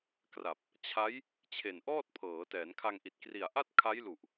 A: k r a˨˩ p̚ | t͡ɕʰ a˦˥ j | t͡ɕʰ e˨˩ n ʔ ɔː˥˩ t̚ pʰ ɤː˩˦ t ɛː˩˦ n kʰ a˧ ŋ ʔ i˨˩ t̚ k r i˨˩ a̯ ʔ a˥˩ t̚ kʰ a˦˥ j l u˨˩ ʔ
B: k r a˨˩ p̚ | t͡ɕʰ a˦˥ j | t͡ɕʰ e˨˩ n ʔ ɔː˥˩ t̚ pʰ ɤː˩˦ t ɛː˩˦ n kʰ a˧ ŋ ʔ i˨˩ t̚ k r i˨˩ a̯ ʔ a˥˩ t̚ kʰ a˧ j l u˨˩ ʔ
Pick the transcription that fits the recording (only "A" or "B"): A